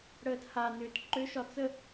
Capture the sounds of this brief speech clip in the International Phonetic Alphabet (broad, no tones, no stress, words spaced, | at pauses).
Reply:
ɽəːthanʏːt ǃʏʃɒ t͡sə